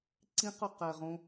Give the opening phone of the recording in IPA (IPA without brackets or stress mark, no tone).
ǀ